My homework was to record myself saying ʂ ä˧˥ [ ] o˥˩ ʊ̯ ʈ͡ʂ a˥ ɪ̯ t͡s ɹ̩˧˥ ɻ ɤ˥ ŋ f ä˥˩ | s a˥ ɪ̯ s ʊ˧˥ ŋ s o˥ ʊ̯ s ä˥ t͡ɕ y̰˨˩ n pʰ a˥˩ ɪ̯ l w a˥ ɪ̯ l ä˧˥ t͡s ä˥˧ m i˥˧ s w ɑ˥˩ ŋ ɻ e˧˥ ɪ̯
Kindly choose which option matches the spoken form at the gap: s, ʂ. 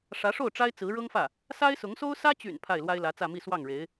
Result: ʂ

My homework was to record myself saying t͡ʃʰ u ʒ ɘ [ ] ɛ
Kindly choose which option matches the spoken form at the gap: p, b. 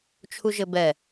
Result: b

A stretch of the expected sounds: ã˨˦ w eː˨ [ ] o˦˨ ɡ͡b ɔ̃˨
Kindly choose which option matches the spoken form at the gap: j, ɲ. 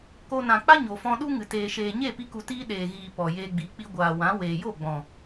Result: j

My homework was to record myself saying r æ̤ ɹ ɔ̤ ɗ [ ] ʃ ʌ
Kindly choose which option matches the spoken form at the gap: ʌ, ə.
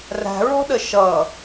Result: ə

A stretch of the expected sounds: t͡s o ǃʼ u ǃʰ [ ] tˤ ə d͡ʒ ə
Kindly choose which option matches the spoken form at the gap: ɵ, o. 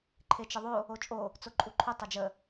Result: ɵ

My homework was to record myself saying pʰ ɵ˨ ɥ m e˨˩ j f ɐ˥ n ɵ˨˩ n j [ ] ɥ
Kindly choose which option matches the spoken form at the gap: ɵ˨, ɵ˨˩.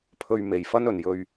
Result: ɵ˨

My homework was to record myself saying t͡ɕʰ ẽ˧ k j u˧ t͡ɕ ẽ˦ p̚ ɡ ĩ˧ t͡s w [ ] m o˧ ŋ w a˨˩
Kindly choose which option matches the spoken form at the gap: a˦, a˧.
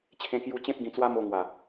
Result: a˦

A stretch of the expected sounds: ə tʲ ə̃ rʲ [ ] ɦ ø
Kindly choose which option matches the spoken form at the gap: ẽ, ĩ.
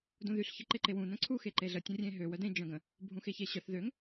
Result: ẽ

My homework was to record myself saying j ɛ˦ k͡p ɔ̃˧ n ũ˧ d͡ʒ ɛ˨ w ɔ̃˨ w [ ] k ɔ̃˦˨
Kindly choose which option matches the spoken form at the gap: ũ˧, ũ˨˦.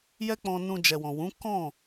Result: ũ˨˦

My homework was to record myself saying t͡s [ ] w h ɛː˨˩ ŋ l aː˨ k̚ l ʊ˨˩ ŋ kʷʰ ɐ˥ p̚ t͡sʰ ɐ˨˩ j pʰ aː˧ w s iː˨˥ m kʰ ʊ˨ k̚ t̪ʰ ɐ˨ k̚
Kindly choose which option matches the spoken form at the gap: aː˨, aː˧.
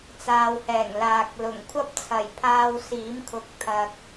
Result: aː˨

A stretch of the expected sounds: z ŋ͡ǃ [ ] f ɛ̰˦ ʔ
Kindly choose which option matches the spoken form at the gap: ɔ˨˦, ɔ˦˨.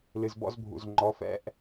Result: ɔ˨˦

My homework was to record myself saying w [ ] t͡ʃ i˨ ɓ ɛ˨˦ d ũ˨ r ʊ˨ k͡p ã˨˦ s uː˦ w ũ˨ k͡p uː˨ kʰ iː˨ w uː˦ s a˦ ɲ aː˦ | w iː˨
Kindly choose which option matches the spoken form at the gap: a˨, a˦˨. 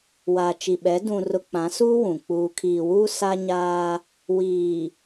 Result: a˨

